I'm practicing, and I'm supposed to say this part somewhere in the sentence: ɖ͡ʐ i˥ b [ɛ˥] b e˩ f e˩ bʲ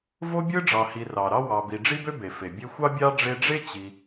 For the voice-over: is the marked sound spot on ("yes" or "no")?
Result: no